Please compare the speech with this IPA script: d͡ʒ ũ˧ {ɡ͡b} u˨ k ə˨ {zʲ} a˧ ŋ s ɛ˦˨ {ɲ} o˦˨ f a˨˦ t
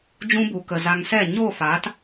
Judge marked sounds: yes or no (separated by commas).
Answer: no, no, yes